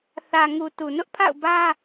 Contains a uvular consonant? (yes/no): no